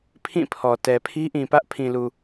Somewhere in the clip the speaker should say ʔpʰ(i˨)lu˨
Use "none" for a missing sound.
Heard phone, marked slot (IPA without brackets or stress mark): ĩ˨